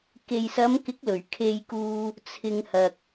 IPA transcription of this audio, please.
k e˨ j s ɐ˨˧ m k ɪ˨˥ k̚ l ɵ˨˩ ɥ kʰ e˧ j k uː˧ | t͡sʰ ɪ˧ ŋ h ɐ˨ k̚

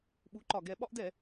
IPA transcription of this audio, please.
ɓ u˩˥ ǃ ɒ˨˩ ɡ ɛ˧˩˧ ɓ ɒ˦ ʔ d ɛ˧˩˧

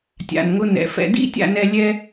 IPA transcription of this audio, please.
tʲ a̰˩ n ŋ ʊ˧ n ɛ̰˩ f ɛ̰˧ d ḭ˥ tʲ a̰˧ n ɛ˧ lʲ ɛ˥

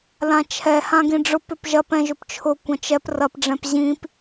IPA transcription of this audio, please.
l ã t͡ʃʰ ɛ h ã ɡ ĩ ɖ͡ʐ ʊ p ʏ p ʒ ɐ p ɛ̃ ʒ ʏ p t͡ʃʰ ʊ kʷ ɐ̃ t͡ʃ ɛ p r ɐ p ɖ͡ʐ ɛ̃ p ʑ ĩ p

